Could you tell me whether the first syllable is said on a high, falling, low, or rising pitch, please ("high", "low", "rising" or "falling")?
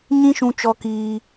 high